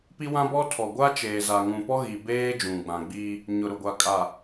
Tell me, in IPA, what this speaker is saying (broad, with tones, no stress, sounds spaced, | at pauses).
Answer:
p i˦ w ã˦ b ɔ˦ tʰ ɔ˨ ɡʷ a˦ t͡ʃ eː˨ z a˨ ŋ ũ˨ p ɔ˦ ɣ i˨ b eː˦ d͡ʒ ũ˨ ɡ͡b ã˨ ɡ͡b iː˦ | ɲ ʊ˨ ɾ ʊ˨ ɡʷ a˨ kʼ a˨